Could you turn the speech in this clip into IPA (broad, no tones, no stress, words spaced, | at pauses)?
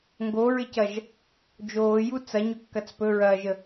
ŋɡoɹɪcɐʒ | d͡ʒoːju t͡sɐɲɵkːɐt͡s pɵɹɐːʒə